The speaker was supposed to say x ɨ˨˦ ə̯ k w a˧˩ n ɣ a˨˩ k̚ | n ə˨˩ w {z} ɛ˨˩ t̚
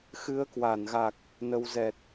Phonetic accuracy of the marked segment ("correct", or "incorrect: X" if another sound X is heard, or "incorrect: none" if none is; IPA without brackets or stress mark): correct